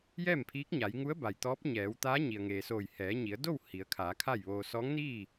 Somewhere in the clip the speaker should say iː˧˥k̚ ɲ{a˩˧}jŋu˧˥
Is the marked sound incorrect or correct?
correct